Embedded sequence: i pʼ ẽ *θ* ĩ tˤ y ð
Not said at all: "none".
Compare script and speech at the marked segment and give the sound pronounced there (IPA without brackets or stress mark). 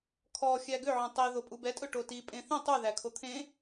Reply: θ